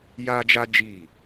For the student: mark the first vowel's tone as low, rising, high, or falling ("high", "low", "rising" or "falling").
high